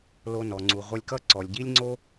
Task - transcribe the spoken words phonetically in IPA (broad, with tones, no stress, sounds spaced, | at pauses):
l o˧ n ɔ˩ ŋ͡ǀ u˩ ʁʷ ʌ˧ lʲ k ʌ˥ ǀ ɔ˩ lʲ ɟ i˥ lʲ ŋ͡ǀ o˥